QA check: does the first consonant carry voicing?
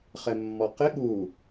no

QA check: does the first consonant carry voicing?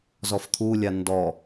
yes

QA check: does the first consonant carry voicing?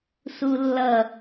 no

